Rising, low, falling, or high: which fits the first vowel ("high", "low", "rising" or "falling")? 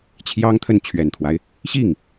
high